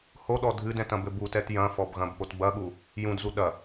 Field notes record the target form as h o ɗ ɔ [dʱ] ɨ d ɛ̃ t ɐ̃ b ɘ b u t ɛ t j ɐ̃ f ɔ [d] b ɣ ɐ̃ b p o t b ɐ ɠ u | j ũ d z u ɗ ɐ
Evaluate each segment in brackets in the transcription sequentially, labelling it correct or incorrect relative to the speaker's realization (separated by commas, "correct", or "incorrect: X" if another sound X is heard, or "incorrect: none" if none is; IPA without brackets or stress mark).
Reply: correct, incorrect: none